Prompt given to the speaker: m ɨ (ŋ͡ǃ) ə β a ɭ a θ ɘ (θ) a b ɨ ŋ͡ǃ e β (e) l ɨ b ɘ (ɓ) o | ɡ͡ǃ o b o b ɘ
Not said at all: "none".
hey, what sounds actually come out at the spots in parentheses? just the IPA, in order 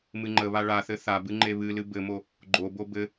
ŋ͡ǃ, θ, ɨ, m

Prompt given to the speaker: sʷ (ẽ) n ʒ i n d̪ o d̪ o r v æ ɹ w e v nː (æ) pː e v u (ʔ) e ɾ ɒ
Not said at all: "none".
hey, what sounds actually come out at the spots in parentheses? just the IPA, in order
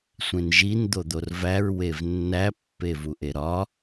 ẽ, æ, ʔ

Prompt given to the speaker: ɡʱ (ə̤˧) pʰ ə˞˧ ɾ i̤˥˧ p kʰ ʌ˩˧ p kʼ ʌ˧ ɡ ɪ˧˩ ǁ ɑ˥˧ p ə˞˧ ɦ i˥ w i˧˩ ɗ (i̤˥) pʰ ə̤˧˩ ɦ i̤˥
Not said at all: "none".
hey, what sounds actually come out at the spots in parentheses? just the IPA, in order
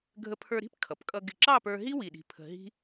ə˧, i̤˧˩

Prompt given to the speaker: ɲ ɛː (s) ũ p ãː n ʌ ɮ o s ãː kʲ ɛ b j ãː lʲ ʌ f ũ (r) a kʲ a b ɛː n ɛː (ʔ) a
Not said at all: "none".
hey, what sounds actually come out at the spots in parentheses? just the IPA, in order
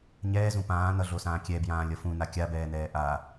z, n, ʔ

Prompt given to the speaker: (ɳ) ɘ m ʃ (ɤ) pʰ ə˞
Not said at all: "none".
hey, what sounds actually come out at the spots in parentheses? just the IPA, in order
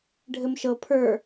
ɖʱ, ɤ

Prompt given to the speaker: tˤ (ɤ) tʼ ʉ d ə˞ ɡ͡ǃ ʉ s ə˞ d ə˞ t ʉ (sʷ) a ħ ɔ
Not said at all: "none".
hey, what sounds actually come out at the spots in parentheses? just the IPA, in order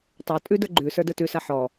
ə˞, s

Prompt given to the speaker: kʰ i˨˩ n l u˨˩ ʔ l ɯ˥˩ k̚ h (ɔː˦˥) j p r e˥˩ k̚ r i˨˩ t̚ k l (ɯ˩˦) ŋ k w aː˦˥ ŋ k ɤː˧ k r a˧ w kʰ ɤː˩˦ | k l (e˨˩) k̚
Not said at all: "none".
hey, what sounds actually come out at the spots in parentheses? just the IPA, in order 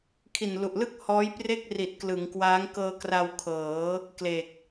ɔː˦˥, ɯ˩˦, e˨˩

